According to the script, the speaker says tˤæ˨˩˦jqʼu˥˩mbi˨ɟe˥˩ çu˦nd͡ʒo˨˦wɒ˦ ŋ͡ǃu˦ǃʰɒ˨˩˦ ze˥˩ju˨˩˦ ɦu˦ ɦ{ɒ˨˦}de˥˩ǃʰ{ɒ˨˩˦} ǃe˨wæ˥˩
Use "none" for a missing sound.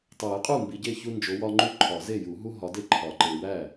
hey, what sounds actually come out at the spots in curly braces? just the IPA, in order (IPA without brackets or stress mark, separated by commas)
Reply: ɒ˨˦, ɒ˨˩˦